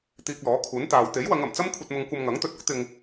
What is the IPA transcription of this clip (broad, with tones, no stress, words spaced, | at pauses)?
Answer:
t̪iː˧k̚lɔː˨˥kʰuː˨˥n t̪aː˨w t̪e˨˥jwɐ˨˧ŋ ɐ˨˩m t͡sɐ˥mkʷʰɐ˧t̚mʊ˧ŋ kʷɐ˧mŋɐ˨˥ŋt̪ɵ˧t̚ ʊ˥k̚t̪ɪ˧ŋ